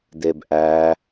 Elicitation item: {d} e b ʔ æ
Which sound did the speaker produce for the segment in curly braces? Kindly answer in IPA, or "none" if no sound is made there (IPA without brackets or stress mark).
d